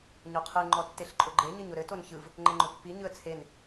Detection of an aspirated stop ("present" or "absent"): present